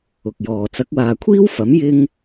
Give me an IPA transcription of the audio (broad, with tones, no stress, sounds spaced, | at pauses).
ʊ˨ k̚ j ɔː˨ t͡s ɐ˨˥ k̚ w aː˨ kʷʰ iː˥ w f ɐ˨˥ m j ɪ˥ ŋ